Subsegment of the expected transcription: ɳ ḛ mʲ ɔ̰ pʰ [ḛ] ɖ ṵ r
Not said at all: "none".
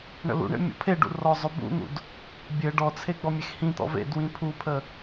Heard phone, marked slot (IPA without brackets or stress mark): e